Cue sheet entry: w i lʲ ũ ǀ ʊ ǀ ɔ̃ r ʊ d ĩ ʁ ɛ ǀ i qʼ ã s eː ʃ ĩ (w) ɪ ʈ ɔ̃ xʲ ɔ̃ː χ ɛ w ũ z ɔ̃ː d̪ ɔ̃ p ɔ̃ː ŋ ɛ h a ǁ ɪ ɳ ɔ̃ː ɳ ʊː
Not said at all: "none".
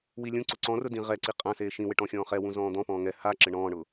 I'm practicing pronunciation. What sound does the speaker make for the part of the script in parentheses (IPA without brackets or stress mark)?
w